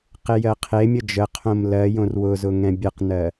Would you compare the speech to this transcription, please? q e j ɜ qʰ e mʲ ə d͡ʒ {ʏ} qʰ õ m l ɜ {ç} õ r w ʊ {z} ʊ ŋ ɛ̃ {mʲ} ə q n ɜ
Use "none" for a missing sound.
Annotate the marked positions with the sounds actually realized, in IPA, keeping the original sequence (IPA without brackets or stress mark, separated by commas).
ə, j, z, bʲ